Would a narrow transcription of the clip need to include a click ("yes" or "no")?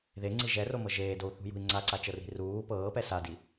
yes